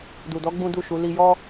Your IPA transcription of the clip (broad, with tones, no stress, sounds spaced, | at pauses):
d u˨ d ɔ˨˦ ɡ͡b ũ˦ d u˦˨ ʃ u˨˦ l i˧ j ɔ˦